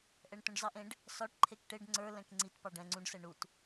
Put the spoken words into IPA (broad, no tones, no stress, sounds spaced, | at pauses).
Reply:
ʔ ɛ ɳ t ũ ɖ z ɑ ʔ ẽ ɖ | s ɒ ʈ ǃʰ e k ʈ e ɖ ŋ͡ǀ ə˞ l ɛ̃ k ŋ͡ǀ i t p ɑ ɖ ɛ̃ ŋ͡ǀ ũ ɖ s ɛ ɳ u t